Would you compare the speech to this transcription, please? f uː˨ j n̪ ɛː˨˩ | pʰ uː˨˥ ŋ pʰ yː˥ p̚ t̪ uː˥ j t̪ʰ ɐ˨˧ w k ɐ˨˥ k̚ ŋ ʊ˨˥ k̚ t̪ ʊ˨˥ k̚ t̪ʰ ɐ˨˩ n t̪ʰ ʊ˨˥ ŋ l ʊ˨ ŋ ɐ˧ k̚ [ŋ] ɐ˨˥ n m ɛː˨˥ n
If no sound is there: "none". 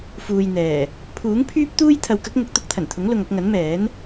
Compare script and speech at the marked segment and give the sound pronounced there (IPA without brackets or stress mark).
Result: ŋ